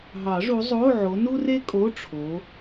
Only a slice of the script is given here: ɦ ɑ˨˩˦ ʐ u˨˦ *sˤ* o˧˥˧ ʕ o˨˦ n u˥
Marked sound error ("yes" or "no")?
yes